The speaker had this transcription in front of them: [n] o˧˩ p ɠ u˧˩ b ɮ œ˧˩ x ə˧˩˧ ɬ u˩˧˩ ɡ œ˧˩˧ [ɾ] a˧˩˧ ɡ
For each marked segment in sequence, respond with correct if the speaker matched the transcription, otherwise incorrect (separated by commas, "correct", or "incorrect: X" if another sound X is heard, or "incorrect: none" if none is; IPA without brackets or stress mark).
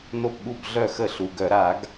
correct, correct